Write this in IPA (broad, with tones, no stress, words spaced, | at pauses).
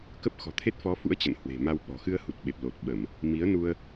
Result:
kə˦˥p̚xɔ̤˨˩t̪ʰe˦˥t̚ fɔ˨˦fṵ˧˥ə̯ t͡ɕə̰˧˨nhwe̤˨˩ma˧w ɓɔ̤˨˩ xɨ˧ə̯hu˨˩t̚ ɓe˨˩p̚lo˨˩t̚ɓə˧˩˨m | mi˨˦ə̯ nu˧ə̯